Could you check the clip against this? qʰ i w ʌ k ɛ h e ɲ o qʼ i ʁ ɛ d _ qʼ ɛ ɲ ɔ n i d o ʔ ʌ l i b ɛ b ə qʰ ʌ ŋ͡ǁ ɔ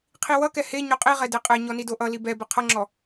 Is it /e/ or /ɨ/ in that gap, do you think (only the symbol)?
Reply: e